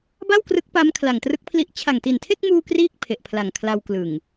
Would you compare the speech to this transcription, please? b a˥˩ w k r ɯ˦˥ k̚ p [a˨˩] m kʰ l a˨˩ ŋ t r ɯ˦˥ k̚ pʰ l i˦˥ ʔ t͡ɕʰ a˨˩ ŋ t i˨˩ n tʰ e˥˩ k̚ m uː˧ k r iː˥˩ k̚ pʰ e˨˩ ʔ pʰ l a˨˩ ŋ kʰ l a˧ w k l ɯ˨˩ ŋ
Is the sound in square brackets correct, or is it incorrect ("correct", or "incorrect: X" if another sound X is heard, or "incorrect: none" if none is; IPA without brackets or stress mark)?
incorrect: a˦˥